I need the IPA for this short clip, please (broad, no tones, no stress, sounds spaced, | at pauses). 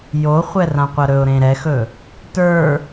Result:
j o χʷ ɛ r ã qʷ ɐ ɾ ɵ ʊ̯ ɾ ẽ ɾ ɛ x ɵ | t ə˞